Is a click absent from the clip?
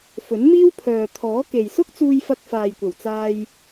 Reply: yes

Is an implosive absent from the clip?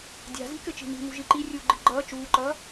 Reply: yes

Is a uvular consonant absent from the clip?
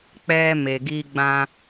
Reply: yes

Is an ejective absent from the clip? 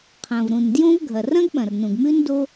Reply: yes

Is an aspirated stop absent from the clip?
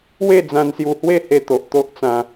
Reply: yes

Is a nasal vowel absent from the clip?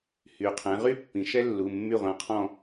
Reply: no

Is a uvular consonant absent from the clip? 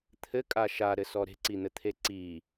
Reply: yes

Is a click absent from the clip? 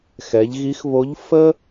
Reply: yes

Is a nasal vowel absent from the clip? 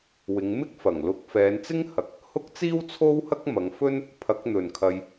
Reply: yes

